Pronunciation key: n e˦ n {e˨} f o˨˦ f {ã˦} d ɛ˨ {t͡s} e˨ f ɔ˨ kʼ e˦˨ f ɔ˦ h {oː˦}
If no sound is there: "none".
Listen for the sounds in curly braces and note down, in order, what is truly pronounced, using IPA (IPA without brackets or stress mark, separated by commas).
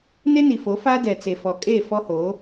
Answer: i˨, a˦, t͡s, oː˨˦